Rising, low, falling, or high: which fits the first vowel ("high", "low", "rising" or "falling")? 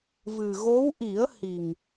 low